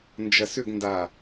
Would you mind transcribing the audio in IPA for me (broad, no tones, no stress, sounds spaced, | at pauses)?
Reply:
n d͡ʒ ɐ s ʏ ɡ n d a